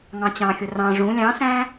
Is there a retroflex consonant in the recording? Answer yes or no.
yes